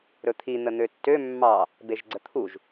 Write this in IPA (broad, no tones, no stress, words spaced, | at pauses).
ɾɵt̪ʰi n̪ən̪øtːø mːɑ | beʒɡ͡ǀət̪ʰuʒ